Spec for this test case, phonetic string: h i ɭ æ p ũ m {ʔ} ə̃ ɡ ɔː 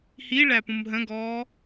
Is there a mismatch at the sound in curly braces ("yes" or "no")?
yes